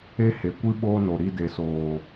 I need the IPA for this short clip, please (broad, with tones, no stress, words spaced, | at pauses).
e˦he˨kʷɨ˦ ɓoː˦no˨ɾi˧ de˨soː˨